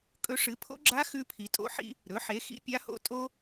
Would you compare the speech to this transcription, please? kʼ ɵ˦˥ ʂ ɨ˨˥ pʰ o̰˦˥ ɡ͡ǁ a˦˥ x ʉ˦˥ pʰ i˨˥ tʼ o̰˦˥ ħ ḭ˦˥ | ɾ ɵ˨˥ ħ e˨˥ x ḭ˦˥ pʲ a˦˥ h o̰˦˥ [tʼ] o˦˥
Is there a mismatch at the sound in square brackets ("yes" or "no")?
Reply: no